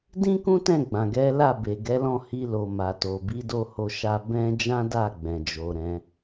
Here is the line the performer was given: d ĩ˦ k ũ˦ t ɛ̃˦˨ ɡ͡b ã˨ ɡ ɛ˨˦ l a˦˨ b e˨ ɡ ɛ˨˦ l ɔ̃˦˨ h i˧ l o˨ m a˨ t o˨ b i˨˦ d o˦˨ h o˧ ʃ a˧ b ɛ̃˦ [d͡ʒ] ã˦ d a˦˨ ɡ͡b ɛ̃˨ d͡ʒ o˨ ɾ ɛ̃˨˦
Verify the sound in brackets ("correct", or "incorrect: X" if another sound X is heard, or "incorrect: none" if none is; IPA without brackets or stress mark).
correct